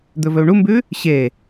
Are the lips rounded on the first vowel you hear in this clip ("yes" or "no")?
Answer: yes